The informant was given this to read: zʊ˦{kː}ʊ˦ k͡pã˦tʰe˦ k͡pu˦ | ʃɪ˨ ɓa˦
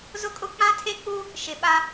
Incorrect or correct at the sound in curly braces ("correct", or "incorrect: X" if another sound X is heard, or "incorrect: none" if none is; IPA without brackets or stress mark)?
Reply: incorrect: kʼ